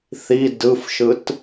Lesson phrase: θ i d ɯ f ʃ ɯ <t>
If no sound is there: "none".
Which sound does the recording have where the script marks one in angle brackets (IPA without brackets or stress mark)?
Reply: t